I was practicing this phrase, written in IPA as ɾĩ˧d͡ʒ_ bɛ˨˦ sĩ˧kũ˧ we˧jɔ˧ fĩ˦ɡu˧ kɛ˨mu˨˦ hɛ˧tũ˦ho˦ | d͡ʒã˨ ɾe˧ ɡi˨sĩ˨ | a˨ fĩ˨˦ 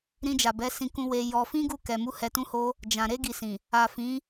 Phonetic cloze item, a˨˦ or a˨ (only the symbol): a˨